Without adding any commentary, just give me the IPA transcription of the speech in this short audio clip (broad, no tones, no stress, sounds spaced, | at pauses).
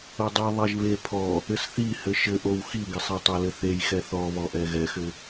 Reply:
o dˤ e ðˤ ɛ ʒ β e pʰ ɔ | ɘ s θ i h ɘ ʃ ɘ ʔ o w x i ɡ ɪ sˤ ɛ tˤ ɛ l ɘ θ e j x ɛ θ ɔ β ɔ ʔ ɛ ɣ ɛ x ɘ